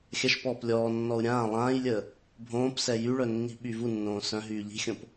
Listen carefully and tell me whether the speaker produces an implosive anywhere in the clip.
yes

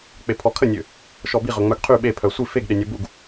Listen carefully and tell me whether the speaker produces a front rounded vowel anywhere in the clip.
yes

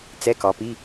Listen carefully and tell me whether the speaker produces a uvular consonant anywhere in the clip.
no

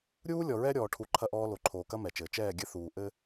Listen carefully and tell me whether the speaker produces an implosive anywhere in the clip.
no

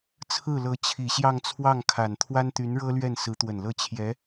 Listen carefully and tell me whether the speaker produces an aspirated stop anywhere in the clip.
yes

